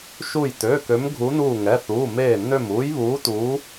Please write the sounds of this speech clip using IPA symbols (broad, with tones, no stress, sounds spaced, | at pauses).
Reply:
ʃ u˧˩ j t ø˩˧˩ k ø˨˦ m ɡʱ u˨˦ n uː˧˩ ŋ ɛ˩˧˩ θ uː˩˧˩ m eː˧˩ nː ø˧˩ m uː˨˦ j β uː˨˦ t uː˨˦